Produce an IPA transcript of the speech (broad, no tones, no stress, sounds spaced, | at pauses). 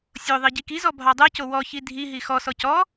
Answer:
sʲ o ðˤ i ɟ i k i z ɔ bʱ ɑ dˤ ɛ c o w ɔ ç i dʱ i ɦ i x ɔ s ɔ c ɔ